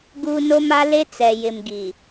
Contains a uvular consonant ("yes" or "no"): no